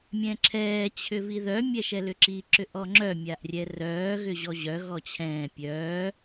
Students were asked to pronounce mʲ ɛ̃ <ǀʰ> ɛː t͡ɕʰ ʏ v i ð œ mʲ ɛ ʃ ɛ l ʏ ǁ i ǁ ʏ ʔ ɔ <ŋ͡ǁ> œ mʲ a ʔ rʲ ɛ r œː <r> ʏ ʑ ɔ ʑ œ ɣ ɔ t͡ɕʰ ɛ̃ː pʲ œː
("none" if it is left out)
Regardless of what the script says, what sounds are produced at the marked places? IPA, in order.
ǁʰ, ŋ͡ǁ, ɣ

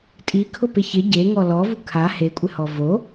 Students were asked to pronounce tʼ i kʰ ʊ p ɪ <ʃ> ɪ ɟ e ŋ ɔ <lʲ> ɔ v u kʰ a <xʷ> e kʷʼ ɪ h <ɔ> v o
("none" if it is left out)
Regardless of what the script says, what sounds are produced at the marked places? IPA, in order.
ç, l, h, ɔ

